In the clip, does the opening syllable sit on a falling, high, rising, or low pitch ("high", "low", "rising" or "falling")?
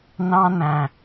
high